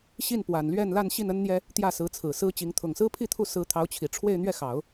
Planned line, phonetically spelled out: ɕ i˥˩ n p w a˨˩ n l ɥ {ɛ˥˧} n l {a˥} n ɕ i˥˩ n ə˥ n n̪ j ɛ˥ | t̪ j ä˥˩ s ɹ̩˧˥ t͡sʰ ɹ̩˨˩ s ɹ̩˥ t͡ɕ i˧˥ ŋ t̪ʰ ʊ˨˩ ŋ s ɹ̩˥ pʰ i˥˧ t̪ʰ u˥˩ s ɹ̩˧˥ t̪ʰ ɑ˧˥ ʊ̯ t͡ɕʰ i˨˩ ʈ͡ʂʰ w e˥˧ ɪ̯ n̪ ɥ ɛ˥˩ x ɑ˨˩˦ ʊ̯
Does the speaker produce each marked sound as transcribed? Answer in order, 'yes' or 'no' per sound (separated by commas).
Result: yes, no